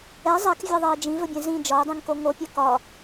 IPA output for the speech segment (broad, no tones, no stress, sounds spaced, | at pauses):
ɛ zˤ ɛ k vʲ ɛ ðˤ ɛ ə̯ d͡ʒ ĩ v ɵ bʲ ɛ̃ z ĩ d͡ʒ ɒ ʊ̯ dˤ ĩ ŋ k o ŋ o pʲ ɛ k ɒ